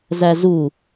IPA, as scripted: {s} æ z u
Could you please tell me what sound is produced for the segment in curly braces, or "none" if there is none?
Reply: z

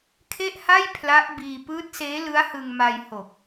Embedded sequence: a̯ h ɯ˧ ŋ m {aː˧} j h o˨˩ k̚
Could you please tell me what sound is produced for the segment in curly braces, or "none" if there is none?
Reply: a˧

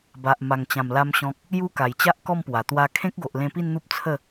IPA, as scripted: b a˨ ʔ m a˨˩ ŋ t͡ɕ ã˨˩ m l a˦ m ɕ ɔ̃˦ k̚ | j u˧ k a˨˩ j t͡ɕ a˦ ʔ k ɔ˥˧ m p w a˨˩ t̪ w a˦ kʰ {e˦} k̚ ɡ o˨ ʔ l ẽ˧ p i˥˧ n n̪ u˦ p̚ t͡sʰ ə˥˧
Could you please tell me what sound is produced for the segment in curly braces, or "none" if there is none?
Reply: ẽ˦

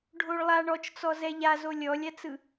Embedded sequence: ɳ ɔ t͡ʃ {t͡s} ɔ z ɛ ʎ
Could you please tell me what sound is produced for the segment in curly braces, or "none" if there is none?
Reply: t͡s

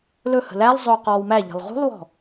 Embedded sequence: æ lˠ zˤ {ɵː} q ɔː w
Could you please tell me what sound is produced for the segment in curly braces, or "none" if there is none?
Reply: ɵː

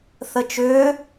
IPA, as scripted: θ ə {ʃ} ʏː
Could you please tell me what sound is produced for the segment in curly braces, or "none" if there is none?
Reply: t͡ʃ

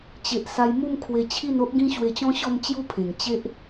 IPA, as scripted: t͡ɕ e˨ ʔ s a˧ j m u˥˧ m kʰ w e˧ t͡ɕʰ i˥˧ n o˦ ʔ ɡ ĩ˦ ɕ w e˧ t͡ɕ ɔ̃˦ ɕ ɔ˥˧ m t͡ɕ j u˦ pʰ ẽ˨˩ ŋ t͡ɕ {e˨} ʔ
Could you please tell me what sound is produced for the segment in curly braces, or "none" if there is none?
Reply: e˦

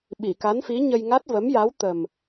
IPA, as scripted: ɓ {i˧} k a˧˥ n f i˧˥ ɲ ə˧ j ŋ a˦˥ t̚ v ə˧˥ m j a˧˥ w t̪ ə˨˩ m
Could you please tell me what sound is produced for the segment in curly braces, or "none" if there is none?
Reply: i˨˩˨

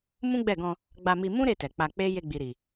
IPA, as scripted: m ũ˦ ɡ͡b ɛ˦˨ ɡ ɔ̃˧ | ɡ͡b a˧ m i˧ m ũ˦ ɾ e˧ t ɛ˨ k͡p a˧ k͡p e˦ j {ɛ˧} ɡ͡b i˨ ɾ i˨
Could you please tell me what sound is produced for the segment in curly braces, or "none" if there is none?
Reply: e˧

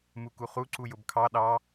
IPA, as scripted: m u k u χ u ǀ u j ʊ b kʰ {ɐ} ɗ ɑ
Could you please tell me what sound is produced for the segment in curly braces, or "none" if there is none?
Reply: ɑ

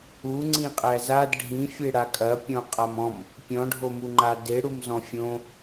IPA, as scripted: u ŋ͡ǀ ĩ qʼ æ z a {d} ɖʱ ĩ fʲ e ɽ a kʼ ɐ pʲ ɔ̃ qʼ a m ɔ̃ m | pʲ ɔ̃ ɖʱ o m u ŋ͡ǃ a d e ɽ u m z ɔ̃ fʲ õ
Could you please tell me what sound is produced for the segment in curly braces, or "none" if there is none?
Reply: d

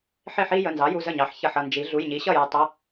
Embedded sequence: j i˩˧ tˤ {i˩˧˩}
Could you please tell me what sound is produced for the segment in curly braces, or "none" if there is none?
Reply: ɪ˩˧˩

